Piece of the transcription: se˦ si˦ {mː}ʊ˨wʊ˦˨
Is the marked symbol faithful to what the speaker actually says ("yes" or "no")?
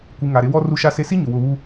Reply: no